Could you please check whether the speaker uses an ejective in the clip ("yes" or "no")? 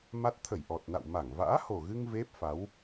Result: no